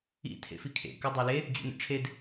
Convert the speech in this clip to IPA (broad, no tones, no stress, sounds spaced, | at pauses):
ḭ tʰ ḛ f i kʰ ḛ k ʏ dˤ o l e | d͡ʑ ṵ n ḛ ʈ͡ʂʰ e d